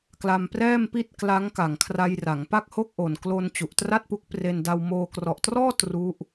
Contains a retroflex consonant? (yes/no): no